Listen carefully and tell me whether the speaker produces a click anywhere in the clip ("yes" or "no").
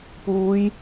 no